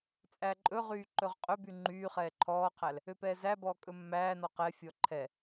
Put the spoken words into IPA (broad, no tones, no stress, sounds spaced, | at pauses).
t͡sʼ æ ǃʼ ɵ ʁ yː ǃ ɵ ʁ qʼ ɵ b y ŋ͡ǃ yː χ ɛː ǃʰ ɔː qʰ æ l | ø p ɛː z æ b ɔː kʼ ɵ mː æː n ɔ q ɛ fʲ ɔ ǃʰ ɛ